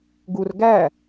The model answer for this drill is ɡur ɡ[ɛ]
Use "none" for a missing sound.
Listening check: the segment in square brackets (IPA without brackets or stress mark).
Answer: æ